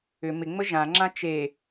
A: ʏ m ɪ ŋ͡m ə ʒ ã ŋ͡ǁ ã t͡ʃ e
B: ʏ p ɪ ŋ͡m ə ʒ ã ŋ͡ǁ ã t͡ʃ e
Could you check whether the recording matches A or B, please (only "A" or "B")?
A